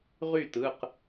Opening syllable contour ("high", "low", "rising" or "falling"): falling